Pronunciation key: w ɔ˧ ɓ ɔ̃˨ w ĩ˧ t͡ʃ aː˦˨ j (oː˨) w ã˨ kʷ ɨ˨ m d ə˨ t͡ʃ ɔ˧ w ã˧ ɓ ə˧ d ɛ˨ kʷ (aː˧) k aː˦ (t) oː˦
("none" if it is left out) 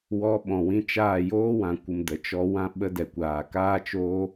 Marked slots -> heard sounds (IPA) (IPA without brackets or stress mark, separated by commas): oː˦, aː˨, t͡ʃ